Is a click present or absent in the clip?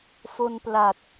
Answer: absent